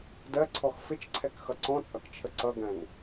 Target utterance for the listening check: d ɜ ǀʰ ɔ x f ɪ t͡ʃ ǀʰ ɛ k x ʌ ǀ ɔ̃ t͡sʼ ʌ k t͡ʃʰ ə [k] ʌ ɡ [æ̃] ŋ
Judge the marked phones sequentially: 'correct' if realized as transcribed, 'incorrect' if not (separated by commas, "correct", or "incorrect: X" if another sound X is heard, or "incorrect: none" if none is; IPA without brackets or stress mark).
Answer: incorrect: ǀ, correct